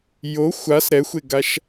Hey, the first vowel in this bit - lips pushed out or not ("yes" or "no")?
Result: yes